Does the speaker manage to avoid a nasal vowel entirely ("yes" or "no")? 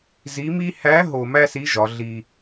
yes